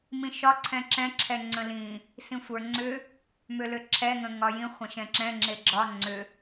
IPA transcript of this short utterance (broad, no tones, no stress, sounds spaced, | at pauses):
m ĩ ʃ ɒ ǀʰ ɛ̃ ǁ ɛ̃ ǁʰ ɛ ŋ͡ǀ ə̃ l ĩ | s ĩ sʷ ə˞ ŋ͡ǀ ʏ | m ʏ l ʏ ǁʰ ɛ ŋ ə̃ ŋ ɒ j ĩ χʷ ə̃ ʃ ɛ̃ ǁ ɛ̃ ŋ͡ǁ e ɡ͡ǁ ɒ ŋ͡ǀ ʏ